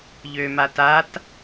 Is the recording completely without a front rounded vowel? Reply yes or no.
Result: no